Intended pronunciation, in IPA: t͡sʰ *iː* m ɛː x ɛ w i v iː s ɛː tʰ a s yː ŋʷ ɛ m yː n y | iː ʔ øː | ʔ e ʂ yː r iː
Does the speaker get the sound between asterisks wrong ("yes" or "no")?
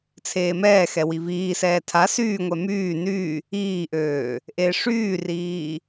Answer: yes